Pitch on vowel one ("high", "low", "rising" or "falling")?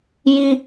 high